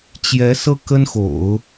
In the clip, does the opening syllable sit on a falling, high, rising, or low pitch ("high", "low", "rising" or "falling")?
rising